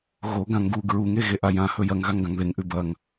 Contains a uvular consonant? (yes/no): no